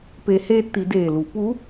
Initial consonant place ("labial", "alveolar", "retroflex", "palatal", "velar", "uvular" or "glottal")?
labial